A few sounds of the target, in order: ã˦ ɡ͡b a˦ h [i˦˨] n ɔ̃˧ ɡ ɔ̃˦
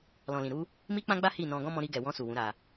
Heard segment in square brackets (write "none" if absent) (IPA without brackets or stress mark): i˦˨